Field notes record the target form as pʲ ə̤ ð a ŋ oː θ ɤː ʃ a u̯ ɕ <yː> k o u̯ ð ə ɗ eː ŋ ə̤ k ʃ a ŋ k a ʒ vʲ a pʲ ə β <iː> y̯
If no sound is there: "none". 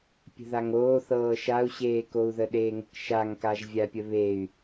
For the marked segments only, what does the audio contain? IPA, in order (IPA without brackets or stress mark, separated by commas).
eː, eː